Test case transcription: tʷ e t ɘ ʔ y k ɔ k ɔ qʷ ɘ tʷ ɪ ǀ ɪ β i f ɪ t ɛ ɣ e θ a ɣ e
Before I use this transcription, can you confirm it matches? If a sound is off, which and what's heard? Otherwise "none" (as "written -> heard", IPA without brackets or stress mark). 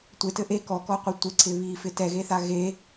y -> e